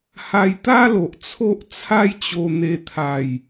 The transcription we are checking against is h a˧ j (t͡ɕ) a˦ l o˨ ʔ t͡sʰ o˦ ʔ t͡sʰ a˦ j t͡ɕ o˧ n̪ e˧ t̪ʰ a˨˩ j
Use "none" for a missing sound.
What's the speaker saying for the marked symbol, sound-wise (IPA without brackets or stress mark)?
t̪